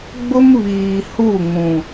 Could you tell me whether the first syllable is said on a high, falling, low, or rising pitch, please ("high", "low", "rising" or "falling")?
high